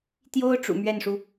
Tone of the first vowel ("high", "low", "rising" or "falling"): high